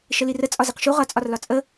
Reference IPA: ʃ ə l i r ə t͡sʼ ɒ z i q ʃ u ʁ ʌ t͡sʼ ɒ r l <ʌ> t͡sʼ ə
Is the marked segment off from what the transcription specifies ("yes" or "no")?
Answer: yes